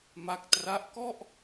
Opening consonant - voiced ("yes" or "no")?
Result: yes